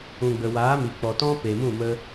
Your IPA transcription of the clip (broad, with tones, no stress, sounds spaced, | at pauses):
ũ˨ ɡ͡b ə˨ w aː˨˦ m i˨ k͡p ɔ˨ t ɔ̃˦ p e˨ m ũ˦˨ m ə˧